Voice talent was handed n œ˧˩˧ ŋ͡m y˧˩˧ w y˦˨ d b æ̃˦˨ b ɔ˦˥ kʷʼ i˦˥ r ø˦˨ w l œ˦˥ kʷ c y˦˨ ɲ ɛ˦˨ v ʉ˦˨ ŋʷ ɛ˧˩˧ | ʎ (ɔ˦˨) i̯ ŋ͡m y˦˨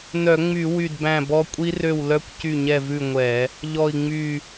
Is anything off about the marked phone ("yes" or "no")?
no